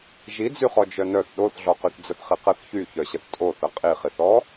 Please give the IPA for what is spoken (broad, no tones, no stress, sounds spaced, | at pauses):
ʒ i d͡z y χ ɔ d͡ʒ œ n œ θ ɗ o θ ɮ ɔ q y θ d͡z ə θ χ i q ə θ ç y ç œ ɕ ə θ tʼ o θ ə qʼ i χ i θ ɔ